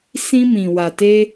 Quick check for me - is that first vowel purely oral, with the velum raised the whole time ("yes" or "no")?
no